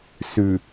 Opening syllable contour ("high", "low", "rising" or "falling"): low